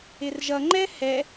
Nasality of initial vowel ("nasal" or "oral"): oral